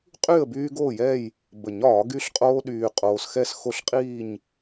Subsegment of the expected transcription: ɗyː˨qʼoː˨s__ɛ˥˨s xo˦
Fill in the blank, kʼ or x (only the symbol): x